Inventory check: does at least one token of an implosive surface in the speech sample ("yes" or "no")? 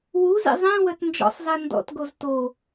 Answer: no